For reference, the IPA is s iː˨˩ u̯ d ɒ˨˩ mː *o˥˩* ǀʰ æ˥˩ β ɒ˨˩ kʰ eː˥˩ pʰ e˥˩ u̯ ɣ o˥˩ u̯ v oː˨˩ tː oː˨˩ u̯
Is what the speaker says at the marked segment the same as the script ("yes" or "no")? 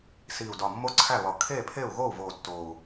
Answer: yes